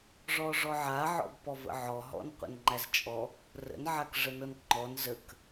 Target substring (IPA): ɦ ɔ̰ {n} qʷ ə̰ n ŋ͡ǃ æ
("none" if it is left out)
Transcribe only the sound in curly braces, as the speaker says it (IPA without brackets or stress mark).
n